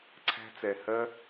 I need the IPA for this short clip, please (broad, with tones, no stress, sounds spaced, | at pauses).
ǀʰ æ̤˦ t͡s ɛ˧ h ɜ˦